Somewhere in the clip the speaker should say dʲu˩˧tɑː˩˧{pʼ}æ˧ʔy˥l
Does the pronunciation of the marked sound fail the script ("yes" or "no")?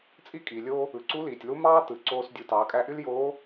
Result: yes